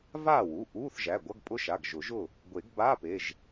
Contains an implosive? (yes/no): no